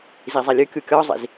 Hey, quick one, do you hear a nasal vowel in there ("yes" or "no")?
no